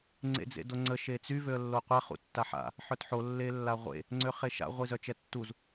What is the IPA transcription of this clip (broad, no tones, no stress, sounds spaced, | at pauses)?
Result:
ŋ͡ǀ ḛ d͡z ḛ d o ŋ͡ǀ ə ʃ e t͡s y v ø ə̯ lː o qʷ ɛ χ ṵ tː a ħ a̰ | ħ œ t ħ o lː e lː a ʁʷ ḛ | ŋ͡ǀ ø χ e ʃ a̰ ʁʷ i z œ t͡ʃ ɛ tː u z